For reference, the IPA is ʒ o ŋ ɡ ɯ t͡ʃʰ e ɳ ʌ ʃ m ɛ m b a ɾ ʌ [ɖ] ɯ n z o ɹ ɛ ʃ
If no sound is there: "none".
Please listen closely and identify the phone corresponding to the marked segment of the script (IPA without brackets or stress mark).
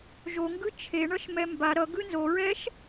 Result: ɡ